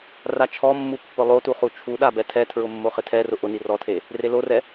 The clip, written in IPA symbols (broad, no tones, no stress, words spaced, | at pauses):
rat͡ʃʰɔmːu pːʊlˠotu χut͡ʃʰuɗa bɛtʰɛtʰɹʊ mːoχɪtʰɛrʊ ʔʊni rɔtʰe | relorɛ